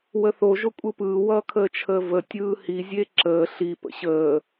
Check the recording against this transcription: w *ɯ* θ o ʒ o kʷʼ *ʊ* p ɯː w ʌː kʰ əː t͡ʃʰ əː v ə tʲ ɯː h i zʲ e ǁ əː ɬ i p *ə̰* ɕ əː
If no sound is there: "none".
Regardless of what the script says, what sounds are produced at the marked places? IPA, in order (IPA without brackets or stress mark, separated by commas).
ə, ɯ, ə̰